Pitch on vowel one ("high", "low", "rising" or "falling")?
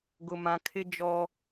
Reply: low